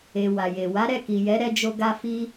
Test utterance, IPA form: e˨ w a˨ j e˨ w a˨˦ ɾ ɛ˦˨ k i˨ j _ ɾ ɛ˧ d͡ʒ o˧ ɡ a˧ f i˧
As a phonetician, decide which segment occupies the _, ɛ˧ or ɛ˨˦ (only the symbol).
ɛ˨˦